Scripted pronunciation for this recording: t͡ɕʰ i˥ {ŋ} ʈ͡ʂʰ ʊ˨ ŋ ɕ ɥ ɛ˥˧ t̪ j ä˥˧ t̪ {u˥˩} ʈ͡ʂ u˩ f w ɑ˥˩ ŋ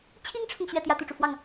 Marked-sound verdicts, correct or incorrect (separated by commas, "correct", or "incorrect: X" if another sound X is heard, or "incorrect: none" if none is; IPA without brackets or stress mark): correct, correct